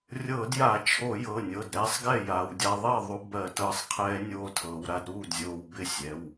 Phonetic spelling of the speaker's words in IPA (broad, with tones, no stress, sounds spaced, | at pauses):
rʲ ɤː˧˩˧ d j a˧˩˧ t͡ʃʰ o˧˩˧ j ɤ˩˧˩ nʲ ɤ˩˧˩ d ɾ ɛː˦˥ sˤ ɡ ɛ˥˩ j aː˩˧ w dʲ a˧ ðˤ ɛ˥˩ ðˤ u˧ b ɜ˧˩˧ t ɤː˧ sˤ qʰ ɛː˦˥ nʲ oː˧ tʰ ɤː˩˧ w ɾ a˧ d ɾ uː˥˩ d zʲ oː˧ w b ɪ˥˩ sʲ ɛ˩˧˩ w